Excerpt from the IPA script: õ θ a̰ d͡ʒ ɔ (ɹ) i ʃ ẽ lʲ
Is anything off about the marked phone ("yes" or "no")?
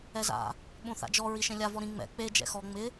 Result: no